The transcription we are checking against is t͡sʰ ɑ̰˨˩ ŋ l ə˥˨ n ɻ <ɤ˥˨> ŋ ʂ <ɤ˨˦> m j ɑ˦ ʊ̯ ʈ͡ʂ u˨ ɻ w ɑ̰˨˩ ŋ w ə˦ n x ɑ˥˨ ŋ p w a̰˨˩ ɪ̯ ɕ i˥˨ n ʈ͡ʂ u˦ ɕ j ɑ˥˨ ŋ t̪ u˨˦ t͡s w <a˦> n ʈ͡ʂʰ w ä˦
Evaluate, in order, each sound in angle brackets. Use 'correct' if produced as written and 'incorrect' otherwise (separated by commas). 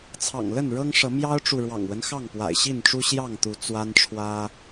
incorrect, correct, correct